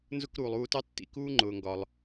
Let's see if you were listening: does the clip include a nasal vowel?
no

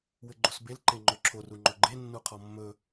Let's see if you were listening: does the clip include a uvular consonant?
yes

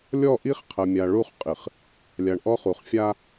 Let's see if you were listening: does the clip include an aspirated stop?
yes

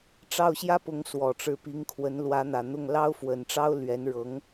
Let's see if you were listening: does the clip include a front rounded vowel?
no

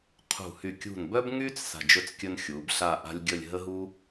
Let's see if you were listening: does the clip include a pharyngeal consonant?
no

